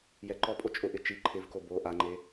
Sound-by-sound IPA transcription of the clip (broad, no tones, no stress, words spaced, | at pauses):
jɛǃɔpʼo t͡ʃʼʊʔɪ t͡ʃi ǃʰɪvko bo ʔaŋ͡ǃe